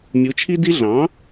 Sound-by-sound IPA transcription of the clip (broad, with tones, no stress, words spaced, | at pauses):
mʲu˩˥t͡ʃʰi˥di˥ ɮɑ̃˩˥